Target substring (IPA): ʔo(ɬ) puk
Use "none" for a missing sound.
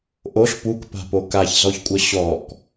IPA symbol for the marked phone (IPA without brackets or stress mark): ɬ